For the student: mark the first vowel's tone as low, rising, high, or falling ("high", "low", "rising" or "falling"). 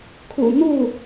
low